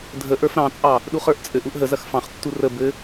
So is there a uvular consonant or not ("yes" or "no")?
yes